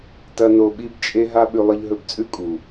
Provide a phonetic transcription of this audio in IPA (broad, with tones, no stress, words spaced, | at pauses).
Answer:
tɐ˦no˧ ɓi˦bt͡ʃʼe˦ ɦa˦ɓʉ˧ lˠɨ˧ʎɦɵ˧bt͡sʼʉ˦ kʼu˨